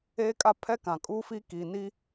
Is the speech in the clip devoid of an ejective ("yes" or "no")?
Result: no